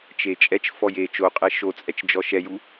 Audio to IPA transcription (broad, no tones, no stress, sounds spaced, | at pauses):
t͡ʃ e t͡ʃʼ ɛ t͡ʃ f ɔ j e t͡ʃ o qʼ ɛ ʃ o t͡sʼ ɛ t͡ʃ d͡ʒ ɔ ʃ ɛ j u